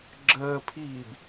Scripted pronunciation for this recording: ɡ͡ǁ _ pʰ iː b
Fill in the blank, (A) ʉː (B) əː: B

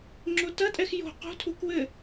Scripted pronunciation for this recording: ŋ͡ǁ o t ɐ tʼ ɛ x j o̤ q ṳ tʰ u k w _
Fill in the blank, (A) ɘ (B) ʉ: A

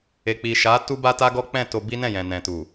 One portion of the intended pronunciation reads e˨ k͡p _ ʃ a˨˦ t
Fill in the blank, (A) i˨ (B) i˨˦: A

